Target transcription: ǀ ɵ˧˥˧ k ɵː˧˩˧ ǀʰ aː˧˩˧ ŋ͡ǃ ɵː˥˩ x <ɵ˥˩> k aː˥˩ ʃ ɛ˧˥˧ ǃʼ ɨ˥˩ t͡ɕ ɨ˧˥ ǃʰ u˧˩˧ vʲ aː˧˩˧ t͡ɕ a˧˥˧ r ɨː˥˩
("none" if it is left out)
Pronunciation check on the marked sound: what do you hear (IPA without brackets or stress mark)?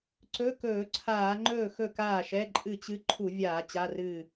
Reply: ɵ˥˩